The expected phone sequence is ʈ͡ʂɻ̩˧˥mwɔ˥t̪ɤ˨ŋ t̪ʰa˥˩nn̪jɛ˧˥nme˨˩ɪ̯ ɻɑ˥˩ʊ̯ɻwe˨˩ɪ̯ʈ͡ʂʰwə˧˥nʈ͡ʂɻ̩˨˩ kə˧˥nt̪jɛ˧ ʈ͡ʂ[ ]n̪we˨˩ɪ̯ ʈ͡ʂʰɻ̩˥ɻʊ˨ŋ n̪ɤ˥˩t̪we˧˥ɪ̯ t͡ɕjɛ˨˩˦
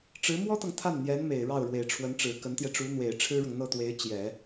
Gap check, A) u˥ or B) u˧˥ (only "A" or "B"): B